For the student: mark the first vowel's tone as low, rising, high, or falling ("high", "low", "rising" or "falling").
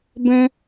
high